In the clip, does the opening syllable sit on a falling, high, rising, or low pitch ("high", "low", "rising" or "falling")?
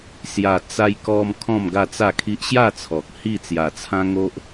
low